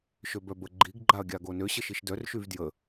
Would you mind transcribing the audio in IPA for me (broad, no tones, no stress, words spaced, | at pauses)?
ʃøbœbə ɡ͡ǃiɡɡ͡ǃaɐ̯ ɡʲaɡonø ɕəʃiʃdœr ʃyvdjə